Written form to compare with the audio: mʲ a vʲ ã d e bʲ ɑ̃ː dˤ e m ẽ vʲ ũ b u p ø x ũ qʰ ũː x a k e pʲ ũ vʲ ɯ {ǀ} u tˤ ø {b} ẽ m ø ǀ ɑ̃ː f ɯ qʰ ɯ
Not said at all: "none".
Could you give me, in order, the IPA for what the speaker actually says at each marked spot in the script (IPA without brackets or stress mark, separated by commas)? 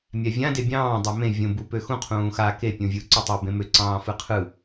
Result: ǀ, b